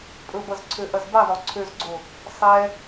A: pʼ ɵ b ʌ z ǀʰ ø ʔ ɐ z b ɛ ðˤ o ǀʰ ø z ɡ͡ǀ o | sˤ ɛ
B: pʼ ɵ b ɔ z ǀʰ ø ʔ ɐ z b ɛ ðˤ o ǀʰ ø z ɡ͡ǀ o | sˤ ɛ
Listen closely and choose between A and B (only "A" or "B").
A